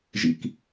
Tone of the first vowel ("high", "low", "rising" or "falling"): low